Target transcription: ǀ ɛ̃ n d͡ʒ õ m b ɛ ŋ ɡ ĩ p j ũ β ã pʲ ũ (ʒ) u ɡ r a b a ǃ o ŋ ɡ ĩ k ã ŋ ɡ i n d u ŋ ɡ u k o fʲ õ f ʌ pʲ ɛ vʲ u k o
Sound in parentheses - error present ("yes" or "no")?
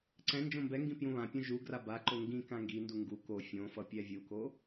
no